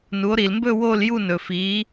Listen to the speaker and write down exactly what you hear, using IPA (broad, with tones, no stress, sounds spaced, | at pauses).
n u˩˧ o̯ ɾ i˩ l m b ɵ˥˧ w o˥˧ l j u˥˧ n ɵ˩ f i˩˧